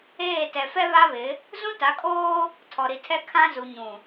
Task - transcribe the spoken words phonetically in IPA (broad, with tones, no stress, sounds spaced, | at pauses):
eː˦˨ t ɛ˨ f ɛ˦ β a˦ β ɪ˨˦ | z ũ˦ t a˨˦ kʼ oː˦ | tʰ ɔ˨ ɾ i˨ tʰ ɛ˦ kʰ ã˦ z u˨ ɲ ũ˨